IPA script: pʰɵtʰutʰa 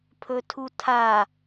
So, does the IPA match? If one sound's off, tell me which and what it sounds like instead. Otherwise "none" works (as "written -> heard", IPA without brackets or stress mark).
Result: none